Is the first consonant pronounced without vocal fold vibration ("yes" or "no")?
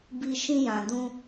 no